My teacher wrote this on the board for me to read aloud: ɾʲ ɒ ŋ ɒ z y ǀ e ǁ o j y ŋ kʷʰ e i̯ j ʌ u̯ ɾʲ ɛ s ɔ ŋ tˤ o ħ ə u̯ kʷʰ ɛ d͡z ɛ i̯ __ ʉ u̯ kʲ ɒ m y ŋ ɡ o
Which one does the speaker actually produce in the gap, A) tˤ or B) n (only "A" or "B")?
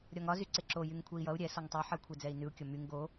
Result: B